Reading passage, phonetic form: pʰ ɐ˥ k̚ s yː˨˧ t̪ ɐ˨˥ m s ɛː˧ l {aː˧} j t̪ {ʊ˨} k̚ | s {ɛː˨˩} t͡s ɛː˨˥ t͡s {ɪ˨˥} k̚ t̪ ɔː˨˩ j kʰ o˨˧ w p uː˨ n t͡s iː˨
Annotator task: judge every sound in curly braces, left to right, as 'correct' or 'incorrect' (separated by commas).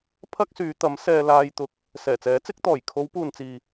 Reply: correct, incorrect, correct, correct